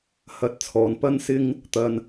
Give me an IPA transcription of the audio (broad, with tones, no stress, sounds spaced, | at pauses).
h ɐ˧ t̚ t͡sʰ ɔː˨ n p ɐ˥ n s ɪ˥ ŋ | t̪ ɐ˧ n